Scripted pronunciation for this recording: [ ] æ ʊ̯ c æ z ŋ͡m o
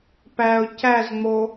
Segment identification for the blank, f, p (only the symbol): p